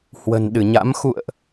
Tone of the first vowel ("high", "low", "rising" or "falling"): low